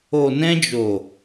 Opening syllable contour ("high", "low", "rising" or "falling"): low